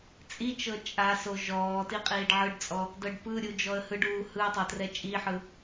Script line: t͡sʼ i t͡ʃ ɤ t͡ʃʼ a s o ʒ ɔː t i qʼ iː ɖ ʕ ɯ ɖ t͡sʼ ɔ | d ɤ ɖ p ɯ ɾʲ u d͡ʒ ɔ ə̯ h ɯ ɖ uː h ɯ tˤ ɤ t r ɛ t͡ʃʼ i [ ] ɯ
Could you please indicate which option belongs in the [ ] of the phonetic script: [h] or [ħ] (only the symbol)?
ħ